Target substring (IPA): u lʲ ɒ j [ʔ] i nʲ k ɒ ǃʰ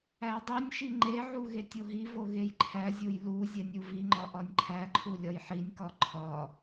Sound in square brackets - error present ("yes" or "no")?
yes